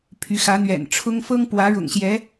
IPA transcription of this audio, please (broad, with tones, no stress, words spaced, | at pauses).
pʰy˧˥xä˧˥n̪ɥɛ̰˨˩nʈ͡ʂʰʊ˥ŋ fɤ˥ŋpwä˧˥ ɻʊ̰˨˩ŋɕjɛ˧˥